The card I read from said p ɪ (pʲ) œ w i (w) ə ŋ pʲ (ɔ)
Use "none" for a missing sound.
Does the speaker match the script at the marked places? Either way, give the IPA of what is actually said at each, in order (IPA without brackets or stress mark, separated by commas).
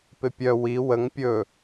pʲ, w, ɵ